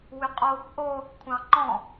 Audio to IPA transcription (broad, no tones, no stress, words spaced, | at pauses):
wʏqʼoːkʷʔo | kʷʰɑ̃ŋ͡ǃɔ̃